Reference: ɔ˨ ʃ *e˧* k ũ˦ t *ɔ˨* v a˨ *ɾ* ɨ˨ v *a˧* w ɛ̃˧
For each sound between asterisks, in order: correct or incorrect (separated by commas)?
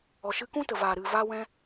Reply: incorrect, incorrect, correct, correct